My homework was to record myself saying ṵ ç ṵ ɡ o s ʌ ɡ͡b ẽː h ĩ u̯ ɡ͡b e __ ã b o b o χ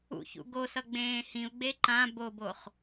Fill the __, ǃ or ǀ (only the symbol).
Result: ǃ